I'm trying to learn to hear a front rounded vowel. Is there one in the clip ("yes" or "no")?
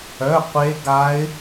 yes